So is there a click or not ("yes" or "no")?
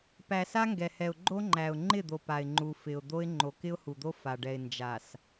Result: yes